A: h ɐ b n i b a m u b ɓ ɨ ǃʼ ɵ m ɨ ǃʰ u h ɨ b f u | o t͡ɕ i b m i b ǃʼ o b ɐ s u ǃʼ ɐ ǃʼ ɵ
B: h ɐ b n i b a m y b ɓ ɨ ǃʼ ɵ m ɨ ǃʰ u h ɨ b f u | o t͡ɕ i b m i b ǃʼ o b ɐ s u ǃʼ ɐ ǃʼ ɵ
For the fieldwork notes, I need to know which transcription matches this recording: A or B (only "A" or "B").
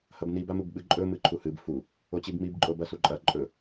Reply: A